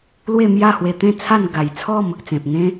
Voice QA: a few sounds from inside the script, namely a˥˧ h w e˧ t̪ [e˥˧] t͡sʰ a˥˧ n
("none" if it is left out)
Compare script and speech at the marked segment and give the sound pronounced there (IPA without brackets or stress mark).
ẽ˥˧